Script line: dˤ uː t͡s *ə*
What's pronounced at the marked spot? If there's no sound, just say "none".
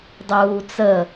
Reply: ə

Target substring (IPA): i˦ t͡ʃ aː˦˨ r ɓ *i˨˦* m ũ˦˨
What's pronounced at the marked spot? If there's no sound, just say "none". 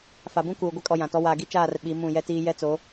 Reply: i˨˦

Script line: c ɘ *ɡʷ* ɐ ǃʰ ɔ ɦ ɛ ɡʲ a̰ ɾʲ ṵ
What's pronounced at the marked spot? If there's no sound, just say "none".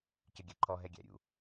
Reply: ɡʲ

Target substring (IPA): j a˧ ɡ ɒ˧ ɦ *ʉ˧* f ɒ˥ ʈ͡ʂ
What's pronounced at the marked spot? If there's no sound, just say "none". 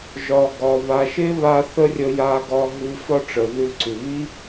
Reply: ʉ˧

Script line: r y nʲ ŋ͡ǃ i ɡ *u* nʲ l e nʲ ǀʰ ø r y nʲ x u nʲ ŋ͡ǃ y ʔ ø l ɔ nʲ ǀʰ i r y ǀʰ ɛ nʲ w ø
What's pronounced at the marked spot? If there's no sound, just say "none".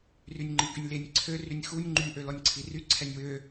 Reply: y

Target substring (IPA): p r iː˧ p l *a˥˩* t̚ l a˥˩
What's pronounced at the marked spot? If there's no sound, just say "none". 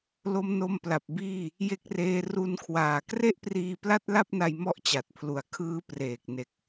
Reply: a˥˩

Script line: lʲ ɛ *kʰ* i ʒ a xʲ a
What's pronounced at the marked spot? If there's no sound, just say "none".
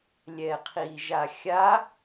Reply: qʰ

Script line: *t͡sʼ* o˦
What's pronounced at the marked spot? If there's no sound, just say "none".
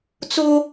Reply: t͡s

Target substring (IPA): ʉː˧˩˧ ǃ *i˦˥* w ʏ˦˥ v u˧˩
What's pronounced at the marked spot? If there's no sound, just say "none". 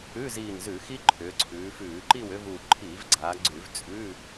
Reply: i˥˨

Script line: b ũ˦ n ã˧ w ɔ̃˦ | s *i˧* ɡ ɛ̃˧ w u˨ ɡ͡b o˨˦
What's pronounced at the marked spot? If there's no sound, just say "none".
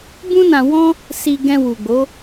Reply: i˧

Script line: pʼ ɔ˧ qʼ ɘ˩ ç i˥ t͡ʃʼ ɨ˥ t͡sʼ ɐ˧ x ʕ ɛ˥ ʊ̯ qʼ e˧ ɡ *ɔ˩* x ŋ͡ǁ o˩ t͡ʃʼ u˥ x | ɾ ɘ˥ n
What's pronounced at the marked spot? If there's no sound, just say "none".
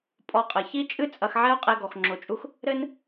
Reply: ɔ˩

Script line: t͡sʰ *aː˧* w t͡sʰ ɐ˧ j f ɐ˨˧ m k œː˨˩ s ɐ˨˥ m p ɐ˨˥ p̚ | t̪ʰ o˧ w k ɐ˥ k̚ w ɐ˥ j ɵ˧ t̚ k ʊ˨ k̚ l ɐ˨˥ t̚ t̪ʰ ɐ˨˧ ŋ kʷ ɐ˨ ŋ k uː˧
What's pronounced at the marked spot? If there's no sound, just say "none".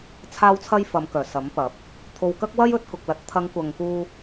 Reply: aː˧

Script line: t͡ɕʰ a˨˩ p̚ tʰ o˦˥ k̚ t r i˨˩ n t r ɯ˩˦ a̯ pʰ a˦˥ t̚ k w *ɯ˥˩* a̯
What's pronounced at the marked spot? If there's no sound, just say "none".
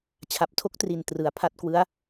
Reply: ɯ˦˥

